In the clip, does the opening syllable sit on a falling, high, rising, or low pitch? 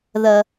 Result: low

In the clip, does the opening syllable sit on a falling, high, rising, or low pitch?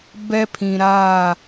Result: high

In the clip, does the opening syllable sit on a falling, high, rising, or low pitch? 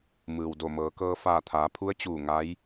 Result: low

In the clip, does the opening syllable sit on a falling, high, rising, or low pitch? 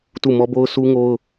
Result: falling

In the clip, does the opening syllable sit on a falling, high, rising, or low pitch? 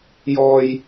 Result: low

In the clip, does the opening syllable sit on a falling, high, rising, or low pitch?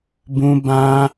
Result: high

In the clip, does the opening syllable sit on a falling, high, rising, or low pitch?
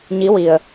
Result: rising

